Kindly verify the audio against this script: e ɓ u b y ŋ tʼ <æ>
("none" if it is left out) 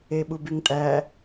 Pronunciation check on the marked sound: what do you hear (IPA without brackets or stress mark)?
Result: æ